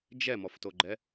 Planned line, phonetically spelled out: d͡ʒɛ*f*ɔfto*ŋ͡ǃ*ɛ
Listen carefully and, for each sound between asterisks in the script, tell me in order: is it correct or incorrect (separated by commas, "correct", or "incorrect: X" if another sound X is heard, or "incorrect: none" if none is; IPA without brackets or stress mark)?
incorrect: m, incorrect: ɡ͡ǃ